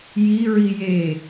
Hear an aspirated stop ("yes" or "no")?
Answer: no